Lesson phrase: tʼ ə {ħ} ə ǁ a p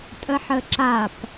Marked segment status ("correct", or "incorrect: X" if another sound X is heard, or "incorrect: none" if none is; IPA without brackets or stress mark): correct